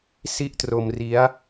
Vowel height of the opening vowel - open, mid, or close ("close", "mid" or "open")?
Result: close